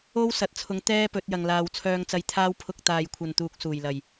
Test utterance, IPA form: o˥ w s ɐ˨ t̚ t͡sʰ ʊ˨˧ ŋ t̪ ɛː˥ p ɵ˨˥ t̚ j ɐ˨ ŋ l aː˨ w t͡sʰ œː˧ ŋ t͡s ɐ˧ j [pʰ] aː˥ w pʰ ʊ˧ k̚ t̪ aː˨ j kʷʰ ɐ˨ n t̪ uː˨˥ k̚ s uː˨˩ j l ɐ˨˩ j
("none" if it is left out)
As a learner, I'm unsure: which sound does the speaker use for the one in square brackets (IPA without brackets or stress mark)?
t̪ʰ